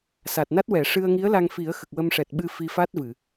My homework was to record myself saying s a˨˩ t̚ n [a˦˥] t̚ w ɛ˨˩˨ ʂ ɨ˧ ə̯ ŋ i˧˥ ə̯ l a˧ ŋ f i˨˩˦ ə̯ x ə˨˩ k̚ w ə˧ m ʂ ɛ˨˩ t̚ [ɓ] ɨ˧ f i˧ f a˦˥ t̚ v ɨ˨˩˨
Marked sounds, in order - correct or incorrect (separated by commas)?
correct, correct